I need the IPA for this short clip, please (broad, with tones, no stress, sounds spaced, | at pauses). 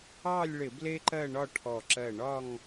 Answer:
ɑ˥˧ lʲ ɭ ɪ˧˩˧ b l e˥ ǃ ɜ˥˧ ɳ ɒ˥˧ ʈʰ ɔ˧˩ ǁ ɜ˧˩ ɳ ɒ˥˧ ŋ